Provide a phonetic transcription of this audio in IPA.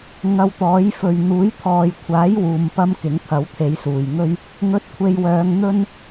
ŋ ɐ˧ w t̪ ɔː˨˥ j f ɵ˨ ɥ n̪ uː˨˥ j t̪ʰ ɔː˨ j kʷʰ aː˨˥ j w uː˨˧ m p ɐ˥ m k ɪ˨˥ ŋ t̪ʰ ɐ˨˥ w t̪ʰ e˨˧ j s uː˨˩ j ŋ ɵ˥ ɥ | ŋ ɵ˧ t̚ kʷʰ e˧ j w œː˨˧ ŋ n̪ ɵ˥ n

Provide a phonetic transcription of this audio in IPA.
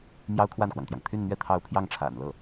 m j ɑ˥ ʊ̯ kʰ w a˥˩ n k w ɑ˩ ŋ t̪ j ɑ˩ ŋ t̪ʰ y˥˧ n n̪ ɥ ɛ˥˧ t̪ʰ ɑ˥˧ ʊ̯ pʰ j ɑ˥˩ ŋ ʈ͡ʂʰ a̰˨˩ n l ɤ˥˩

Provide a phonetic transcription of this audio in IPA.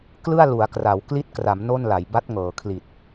k l ɯ˥˩ a̯ l u˩˦ a̯ k r a˩˦ w k l i˦˥ t̚ k r a˩˦ m n o˥˩ n l a˩˦ j b a˦˥ t̚ ŋ ɤː˩˦ kʰ l i˨˩ t̚

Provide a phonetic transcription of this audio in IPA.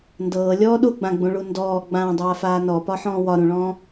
n d ɤː lʲ ɔː ɗ u ɡ͡b ã ɡ͡b ũ ɭ u n d ɔː ɡ͡b ãː dˤ aː f aː n ɔ p ɒ ħ ɔ̃ː w ɒ ɾ ũ ɭ ɔ̃ː

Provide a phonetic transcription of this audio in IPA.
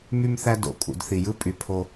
m y˧ m θ æ˧ d o̰˨ kʼ ṵ˨ d θ i˨ j ɯ˦ pʼ y˨ pʰ o˧

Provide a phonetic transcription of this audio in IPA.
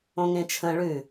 õ ŋ ẽ t͡ʃʰ ə̃ ɭ ʉ

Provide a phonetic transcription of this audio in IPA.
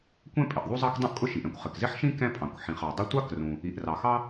kʷ ɛ̃˥ pʼ ɪ˩ ʔ ðˤ u˥ zˤ ɑ˥ k dˤ ũ˥ ʔ kʼ ʊ˥ ʃ i˩ ʔ ɛ̃˥ kʷ χ ɪ˩ k z ɪ˥ ħ ʃ ĩ˥ k ɛ̃˥ pʼ ɑ̃˩ kʷ ħ ĩ˩ χ ɑ˩ dˤ ʊ˥ tʷ ɑ˥ k r ũ˩ | i˩ ʔ r ɑ˩ x ɑ˥

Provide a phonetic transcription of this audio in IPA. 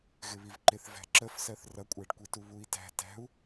ɣ ɪ β i v ǃ ɪ θ v æ̤ ǁ ə f s ɜ θ r ʌ kʷʼ æ ɖ kʷ i t u β u i̯ t æ̤ t æ̤ u̯

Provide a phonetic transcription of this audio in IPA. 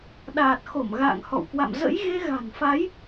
ɗ aː˨˩ t̚ x o˧˩ m ɣ a̰ː˧˨ ŋ h ɔ̰˧˨ w k w a̰˧˨ m z ə̰˧˥ j ɣ e˧ ɣ a̤˨˩ n f a˨˦ j

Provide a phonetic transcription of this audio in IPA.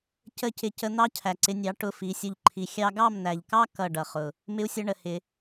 c ə˦˨ c ɪ˧ c ə˧ n̪ ɑ˦ cʰ æ˨ ǀ ɪ˧ nʲ ɑ˨˦ ʈ ʊ˧ f i˨˦ sʲ ʊ˦ ʎ ǃʰ i˧ xʲ ɑ˧ ɡ ɑ˦˨ m n̪ æ˨ ʎ k ɑ˦ k ʌ˦˨ ɖ ʌ˨ χ ʊ˨ | m ɪ˦ u̯ sʲ ʌ˦ ɳ ə˨ h ɪ˧

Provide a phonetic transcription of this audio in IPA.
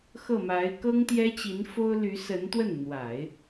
x ɤ˥˩ m a˧˥ ɪ̯ k ɤ˥ ŋ t̪ j ɛ˥ t͡ɕ i˧˥ n f o˥ ʊ̯ l y˧˥ s ə˧˥ n t̪ w ə˥˩ n n̪ w a˨˩˦ ɪ̯

